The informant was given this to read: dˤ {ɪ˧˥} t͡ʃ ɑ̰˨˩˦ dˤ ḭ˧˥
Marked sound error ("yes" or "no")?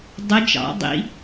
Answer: no